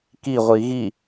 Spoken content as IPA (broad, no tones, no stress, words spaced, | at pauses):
kiʁʷi ɣi